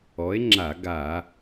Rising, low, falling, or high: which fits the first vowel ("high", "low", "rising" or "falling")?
rising